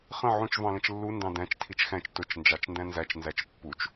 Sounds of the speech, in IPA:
χə̃ ʕũt͡ʃ vɑ̃lə̃t͡ʃlːu ndɑ̃dæ̃t͡ʃ tʰit͡ʃxæ̃t͡ʃ tʊt͡ʃ nd͡ʒɑt͡ʃndæ̃nzæt͡ʃ nzæt͡ʃpːut͡ʃ

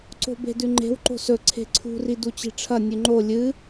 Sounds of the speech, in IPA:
ǀo̤be̤dʉŋ͡ǃe̤w ǃo̤sɵ ǀʰe̤ǀʰṳ ridut͡ɕi̤ʈ͡ʂʰɐ nʲʉŋ͡ǃo lʲɨ

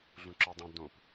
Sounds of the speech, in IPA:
ɮũǁɤdˤõ dõp

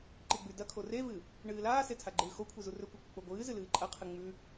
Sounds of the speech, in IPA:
ǃiɡ͡bʉdɐkʰo revɨ | ɳɨːlaːse tʰaɡ͡ǃɨːxokʷʰi zurɵkʷɨ kʷɨk͡poɡʷɨːzɨ lɨːǃʼɐqʰɨ ŋ͡mʉ

